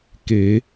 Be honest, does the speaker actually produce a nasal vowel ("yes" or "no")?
no